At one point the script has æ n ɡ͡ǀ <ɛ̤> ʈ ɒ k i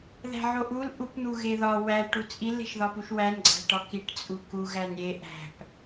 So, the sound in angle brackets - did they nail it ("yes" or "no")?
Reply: no